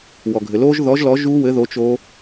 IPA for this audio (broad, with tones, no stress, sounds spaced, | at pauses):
w ɔ˩ ɡʱ ɘ˩ l oː˦˥ ʒ ð ɔ˨˥ ʒ l ɔ˨˥ ʒ u˦˥ w ɘ˨˥ ð o˨˥ t͡ʃ o˦˥